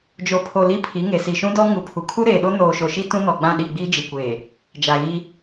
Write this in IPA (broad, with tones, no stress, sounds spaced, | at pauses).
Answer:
d͡ʒ o˨ pʰ o˨ l i˦ pʰ i˨˦ ŋ e˨ s i˨ ʃ ũ˦ d ɔ˦ ŋ u˨ pʰ u˨ kʰ u˦ ɾ eː˨ ɗ o˦ n oː˨ ʃ o˨ ʃ i˦ t ũ˦ n ɔ˨ ɡ͡b ã˦˨ ɗ i˦˨ ɡ͡b iː˦ d͡ʒ i˨ kʷ eː˨ | d͡ʒ a˨ ɣ i˦